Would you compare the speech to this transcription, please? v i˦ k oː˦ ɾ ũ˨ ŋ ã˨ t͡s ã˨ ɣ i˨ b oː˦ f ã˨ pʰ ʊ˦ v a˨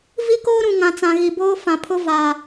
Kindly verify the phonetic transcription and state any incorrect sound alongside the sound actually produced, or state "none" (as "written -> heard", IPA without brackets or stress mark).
none